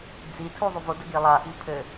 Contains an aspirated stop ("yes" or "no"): yes